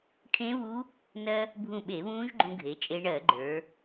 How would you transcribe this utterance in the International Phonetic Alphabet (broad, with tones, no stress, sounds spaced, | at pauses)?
ʈʰ ẽ˦˥ β u˦˥ | n ɜ˧ | bʱ ũ˧˩ ɓ e˧˩˧ β ũː˦˥ ʒ ɡ͡ǃ ũ˧ ɡʱ e˩˧ t͡ʃʼ e˧ ɳ ɜ˧˩˧ ɡ͡ǃ ə˞˩˧